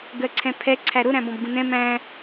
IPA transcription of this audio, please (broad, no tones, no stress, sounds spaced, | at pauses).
ɡ ɜ ǀʰ ɛ̃ pʰ ɛ ǀʰ æ ɾ ʊ ɾ æ̃ b ɔ̃ b ɡ ũ n ɛ̃ m æ̃